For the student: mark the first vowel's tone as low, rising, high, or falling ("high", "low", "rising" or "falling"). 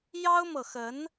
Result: high